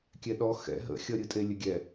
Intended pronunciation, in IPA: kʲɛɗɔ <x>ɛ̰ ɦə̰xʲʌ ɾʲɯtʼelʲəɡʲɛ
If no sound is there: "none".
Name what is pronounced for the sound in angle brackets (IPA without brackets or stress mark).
x